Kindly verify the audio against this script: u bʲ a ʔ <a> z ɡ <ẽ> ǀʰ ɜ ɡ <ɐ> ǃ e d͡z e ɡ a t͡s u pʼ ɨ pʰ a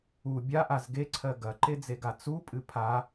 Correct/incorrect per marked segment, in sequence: correct, incorrect, correct

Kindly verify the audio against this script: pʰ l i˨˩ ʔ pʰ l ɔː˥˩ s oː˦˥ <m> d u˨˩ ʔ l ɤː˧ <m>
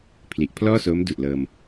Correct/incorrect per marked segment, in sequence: correct, correct

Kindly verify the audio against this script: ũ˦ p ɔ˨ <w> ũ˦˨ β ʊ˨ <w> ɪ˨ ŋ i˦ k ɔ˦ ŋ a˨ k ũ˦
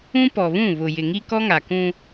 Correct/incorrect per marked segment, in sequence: incorrect, incorrect

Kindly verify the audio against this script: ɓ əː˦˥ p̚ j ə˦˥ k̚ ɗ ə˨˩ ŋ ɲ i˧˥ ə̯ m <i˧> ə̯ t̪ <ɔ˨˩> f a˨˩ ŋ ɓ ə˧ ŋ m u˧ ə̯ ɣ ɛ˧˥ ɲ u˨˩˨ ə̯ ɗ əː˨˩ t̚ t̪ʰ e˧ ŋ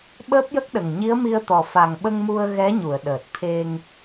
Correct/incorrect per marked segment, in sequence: correct, correct

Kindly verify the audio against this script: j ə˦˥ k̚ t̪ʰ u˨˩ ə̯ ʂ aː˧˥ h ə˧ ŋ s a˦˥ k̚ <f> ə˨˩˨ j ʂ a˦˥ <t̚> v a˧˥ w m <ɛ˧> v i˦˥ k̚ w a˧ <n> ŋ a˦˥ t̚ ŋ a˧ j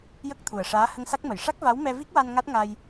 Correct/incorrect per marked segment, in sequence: incorrect, incorrect, correct, correct

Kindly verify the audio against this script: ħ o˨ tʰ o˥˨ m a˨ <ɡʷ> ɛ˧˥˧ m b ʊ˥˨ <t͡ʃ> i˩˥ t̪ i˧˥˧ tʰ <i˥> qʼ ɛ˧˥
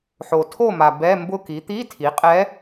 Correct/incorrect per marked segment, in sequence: incorrect, incorrect, incorrect

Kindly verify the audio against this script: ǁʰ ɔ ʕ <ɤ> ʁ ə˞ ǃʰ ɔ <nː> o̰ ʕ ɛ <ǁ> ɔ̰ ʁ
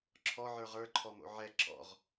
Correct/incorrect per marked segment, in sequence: incorrect, incorrect, correct

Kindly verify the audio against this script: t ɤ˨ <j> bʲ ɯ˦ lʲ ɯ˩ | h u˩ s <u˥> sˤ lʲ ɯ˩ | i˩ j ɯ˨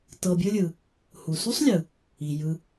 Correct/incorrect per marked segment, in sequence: incorrect, correct

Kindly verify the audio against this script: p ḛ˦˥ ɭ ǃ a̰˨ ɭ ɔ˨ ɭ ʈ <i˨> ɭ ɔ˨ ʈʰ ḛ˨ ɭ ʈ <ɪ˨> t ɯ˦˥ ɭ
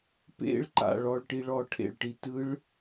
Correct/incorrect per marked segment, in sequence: correct, incorrect

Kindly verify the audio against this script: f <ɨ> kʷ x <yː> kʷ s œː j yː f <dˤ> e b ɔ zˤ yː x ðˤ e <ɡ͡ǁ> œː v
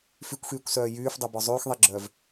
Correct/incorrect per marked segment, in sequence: incorrect, correct, correct, correct

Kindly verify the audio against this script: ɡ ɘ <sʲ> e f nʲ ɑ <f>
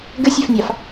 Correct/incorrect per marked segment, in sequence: correct, correct

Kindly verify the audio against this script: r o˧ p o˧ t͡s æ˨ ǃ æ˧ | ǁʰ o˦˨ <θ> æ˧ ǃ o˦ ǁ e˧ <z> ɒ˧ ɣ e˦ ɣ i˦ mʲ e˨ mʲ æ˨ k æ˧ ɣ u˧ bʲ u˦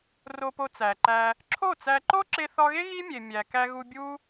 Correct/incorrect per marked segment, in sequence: incorrect, incorrect

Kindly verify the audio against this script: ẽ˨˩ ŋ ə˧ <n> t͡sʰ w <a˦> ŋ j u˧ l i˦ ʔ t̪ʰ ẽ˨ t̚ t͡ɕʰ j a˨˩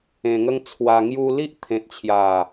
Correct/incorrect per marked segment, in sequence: incorrect, incorrect

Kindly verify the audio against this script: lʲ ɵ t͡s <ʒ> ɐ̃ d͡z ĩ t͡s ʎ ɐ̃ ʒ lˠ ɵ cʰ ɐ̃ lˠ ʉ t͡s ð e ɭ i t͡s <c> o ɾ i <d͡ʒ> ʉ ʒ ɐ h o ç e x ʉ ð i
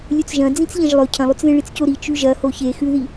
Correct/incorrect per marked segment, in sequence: correct, correct, incorrect

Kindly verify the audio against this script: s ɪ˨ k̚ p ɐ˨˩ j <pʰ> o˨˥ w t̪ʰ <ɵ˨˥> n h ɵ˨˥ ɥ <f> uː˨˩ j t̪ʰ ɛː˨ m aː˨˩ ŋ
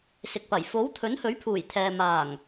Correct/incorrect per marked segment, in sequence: incorrect, correct, incorrect

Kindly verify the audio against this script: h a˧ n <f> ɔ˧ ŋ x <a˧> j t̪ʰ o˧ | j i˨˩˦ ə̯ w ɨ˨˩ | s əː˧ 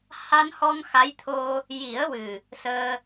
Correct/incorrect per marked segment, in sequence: incorrect, incorrect

